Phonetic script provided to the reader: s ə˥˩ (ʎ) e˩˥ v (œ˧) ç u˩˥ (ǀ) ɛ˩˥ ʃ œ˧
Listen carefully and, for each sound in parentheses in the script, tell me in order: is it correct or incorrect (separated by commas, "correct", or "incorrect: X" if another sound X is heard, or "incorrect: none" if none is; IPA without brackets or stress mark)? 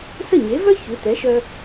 incorrect: ɲ, incorrect: œ˥, incorrect: t